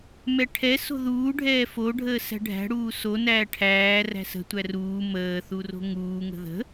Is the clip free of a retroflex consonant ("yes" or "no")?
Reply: no